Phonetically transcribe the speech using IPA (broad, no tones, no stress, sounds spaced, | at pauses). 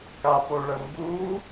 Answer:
k a p o ɭ ə m b u